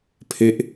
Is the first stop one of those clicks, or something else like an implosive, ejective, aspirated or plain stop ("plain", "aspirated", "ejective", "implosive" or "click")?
aspirated